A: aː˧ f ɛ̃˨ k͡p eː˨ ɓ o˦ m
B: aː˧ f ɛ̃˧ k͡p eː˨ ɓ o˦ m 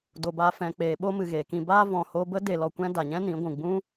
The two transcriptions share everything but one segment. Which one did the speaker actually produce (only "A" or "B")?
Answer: A